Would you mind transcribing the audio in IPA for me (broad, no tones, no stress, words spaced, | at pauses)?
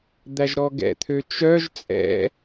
d̪æʒɾɔɡɛ̰t̪ʰø t͡ʃœʒ t͡sʼɛ̰